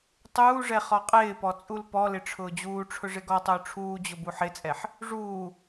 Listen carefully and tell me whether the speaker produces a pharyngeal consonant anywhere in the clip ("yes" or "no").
yes